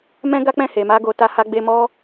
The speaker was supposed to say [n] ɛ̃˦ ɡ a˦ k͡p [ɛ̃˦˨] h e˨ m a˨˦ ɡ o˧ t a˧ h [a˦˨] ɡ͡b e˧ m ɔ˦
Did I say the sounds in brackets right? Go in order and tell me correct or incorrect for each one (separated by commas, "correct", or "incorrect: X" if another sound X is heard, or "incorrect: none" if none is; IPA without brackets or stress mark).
incorrect: m, correct, incorrect: a˧